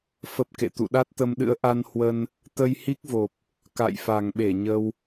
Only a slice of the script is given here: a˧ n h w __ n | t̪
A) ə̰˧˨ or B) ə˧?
B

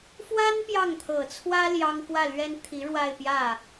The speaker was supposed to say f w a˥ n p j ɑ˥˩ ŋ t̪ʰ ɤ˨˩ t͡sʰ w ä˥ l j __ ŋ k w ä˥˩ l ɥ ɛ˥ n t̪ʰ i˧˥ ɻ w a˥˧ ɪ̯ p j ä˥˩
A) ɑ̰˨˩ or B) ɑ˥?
B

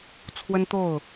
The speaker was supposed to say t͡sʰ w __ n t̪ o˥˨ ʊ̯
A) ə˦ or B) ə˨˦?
A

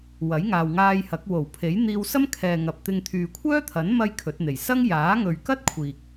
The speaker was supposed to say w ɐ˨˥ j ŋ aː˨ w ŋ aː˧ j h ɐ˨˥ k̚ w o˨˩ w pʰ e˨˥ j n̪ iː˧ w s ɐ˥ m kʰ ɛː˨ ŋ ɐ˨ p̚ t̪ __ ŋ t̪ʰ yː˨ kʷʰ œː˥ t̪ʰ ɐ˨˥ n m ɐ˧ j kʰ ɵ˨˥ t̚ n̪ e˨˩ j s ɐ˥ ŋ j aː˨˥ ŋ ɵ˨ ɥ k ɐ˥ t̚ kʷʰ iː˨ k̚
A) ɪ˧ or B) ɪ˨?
A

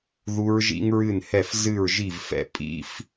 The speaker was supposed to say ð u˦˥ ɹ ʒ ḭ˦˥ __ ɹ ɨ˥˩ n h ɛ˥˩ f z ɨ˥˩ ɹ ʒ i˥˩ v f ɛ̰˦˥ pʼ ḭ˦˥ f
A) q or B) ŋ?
B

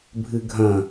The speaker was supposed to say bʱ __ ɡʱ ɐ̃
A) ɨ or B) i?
A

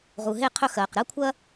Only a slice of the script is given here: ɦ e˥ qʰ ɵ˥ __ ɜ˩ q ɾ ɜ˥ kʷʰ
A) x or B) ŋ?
A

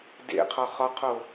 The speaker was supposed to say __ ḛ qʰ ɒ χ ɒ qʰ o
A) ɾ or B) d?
B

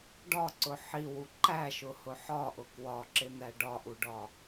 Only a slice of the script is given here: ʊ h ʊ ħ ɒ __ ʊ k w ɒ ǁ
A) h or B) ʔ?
B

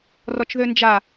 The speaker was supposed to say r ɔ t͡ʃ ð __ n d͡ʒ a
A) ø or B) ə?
A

